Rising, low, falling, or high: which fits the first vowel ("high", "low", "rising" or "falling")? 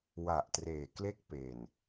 low